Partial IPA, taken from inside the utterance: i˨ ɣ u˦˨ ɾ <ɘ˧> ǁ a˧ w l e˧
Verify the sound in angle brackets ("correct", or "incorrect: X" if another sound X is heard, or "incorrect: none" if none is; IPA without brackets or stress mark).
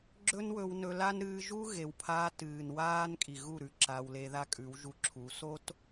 incorrect: ʉ˧